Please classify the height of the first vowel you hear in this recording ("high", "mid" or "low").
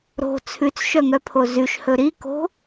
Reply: mid